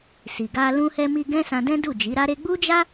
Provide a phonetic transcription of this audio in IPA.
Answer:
si˨ɡa˧ lũ˧hɛ˧mi˧ ɡɛ̃˦sã˧dɛ̃˦du˦˨ d͡ʒi˨˦ɾa˦ɾe˦ ɡ͡bu˦d͡ʒa˦

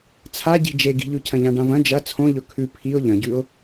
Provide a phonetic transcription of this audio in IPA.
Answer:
t͡sʰaɟi̤ d͡ʒeɡi̤ʎʉcʰɐ̃ ʎãɖãvɐ̃ d͡ʒɐ t͡sʰõʎɵ kʰʉ pʰiʊ̯ ʎɐ̃ɟʉʊ̯

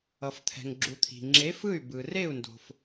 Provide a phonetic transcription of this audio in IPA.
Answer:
ʌ˩ft̪ʰɛ̤˩ŋɡ͡ǁu˩ t̪ʰi̤˩ŋ͡ǁe˨˥fɯ˥˩y̯ bɯ˩ re˥˩u̯ndo̤˩f

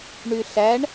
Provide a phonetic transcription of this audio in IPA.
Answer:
ɳyɬæɳ

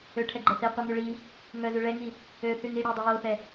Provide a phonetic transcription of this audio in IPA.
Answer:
øʈʰɛɡ͡ǃɛ θiqʷiŋʉ ɭi | ŋœzʉ ɭɛŋi | øθyŋ iɽødˤʉ joθɛ

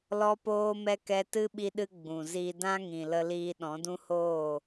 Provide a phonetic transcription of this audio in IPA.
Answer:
lɔ˦poː˦mɛ˦ kɛ˧tɨ˦ ɓi˧ɗɨ˧ ɡ͡bũ˨ zi˧ dã˦ŋĩ˨ lə˧liː˧ ɗɔ̃˨˦dũ˦hoː˦˨

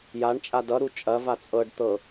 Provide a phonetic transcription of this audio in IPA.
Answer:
jaɳt͡ʃʼa dʌɾu t͡ʃʼɐva t͡sʼɤɖ t̪ɤ

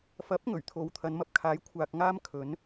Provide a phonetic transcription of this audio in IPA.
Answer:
fɐ˨˥p̚ŋɵ˨˩ɥ t̪ʰo˨wt̪ʰɐ˨˧nmɐ˧p̚kʰaː˨˥j kʷʰaː˧k̚ŋaː˥m kʰɵ˨˥n

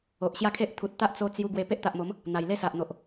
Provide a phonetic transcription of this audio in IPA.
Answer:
o˨ʔɕja˥˧kʰe˦ʔ t̪ʰu˨t̚t̪a˦ʔ t͡so˧ t͡sju˧ ɡwe˧ pe˦ʔt̪a˨ʔmo˨˦m | n̪a˨˩jle˥˧sa˨ʔn̪o˨ʔ

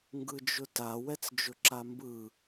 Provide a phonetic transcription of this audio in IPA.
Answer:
ŋɡɯd͡ʒʊta wɛt͡sd͡ʒʊǁambɯ

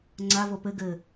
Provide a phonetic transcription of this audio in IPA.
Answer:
ŋ͡ǀavo pɘ ɡɘ

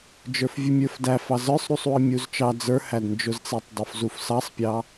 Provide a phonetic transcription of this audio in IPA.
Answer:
d͡ʒə˞fvʲumʲə˞fdæ fɑzə˞sˤɾusˤ uə̯mʲuzt͡ʃɑ d͡zə˞hædnd͡ʒʊzt͡sɛtˤ dˤʊfzufsɑsˤpʲɑ

